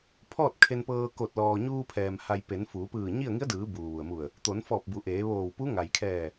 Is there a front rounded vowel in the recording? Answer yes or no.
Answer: no